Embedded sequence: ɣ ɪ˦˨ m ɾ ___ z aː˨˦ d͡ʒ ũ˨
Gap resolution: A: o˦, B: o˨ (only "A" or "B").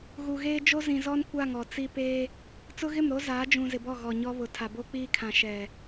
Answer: A